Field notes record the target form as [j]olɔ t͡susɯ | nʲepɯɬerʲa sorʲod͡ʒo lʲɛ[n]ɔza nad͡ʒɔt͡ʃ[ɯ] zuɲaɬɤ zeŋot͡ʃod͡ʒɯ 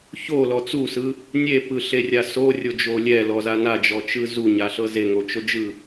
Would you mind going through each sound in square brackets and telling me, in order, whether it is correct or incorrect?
incorrect, incorrect, correct

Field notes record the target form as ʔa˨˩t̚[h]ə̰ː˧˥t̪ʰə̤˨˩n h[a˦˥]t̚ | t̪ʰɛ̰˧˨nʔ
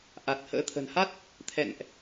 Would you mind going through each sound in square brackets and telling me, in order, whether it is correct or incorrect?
correct, correct

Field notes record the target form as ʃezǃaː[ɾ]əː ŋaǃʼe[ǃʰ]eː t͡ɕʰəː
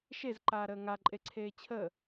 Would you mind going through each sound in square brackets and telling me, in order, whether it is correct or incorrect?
correct, incorrect

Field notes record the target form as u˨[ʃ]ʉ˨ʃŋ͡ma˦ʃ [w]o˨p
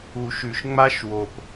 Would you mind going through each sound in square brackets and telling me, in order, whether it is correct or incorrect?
correct, correct

